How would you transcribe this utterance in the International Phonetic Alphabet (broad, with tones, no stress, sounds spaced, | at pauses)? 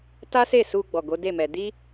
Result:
t a˦ s e˦˨ s u˧ ɡ͡b ɔ˨ ɡ o˨˦ d e˦˨ m ɛ˧ d i˦